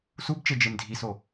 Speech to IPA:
s u b t͡ʃ e d͡ʒ e m dʱ i s o

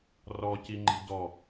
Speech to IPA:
r ɔ c i ŋ͡ǃ i̤ d ɔ

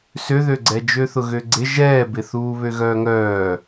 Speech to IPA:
s ø ð ø ɡ͡ǀ ɛ d͡ʒ ø θ ʊ ɣ ø ɡ͡ǀ ɪ ʒ ɛː b ɪ θ uː β ø ɣ œː ŋ œː

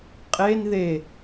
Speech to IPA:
qʼ e n ð e

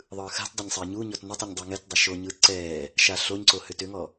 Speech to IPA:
ðˤ ɯː x a̤ t dˤ ɛ ɲ sˤ ɛː ɲ u ɲ ɔ t n ʏ tˤ ɯ ɲ dˤ u ŋ ɛ t dˤ o ʃ o ɲ ɯː t ǀ ɛː | ʃ a ɬ o ɲ ǀ o h ʏ t ʏ ŋ ɔ

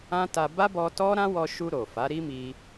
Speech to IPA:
ã˦ t a˧ b a˦ b ɔ˧ t ɔ˦ ɾ ã˦ w ɔ˧ ʃ u˧ ɾ o˨ f a˨˦ ɾ i˦ m i˧

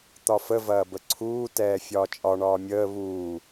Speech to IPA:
t̪ ɒ f ə v ɐː b ə ǀʰ uː t ɛː fʲ ɒː t͡ʃʼ ɒ ɳ ɒː mʲ əː β uː

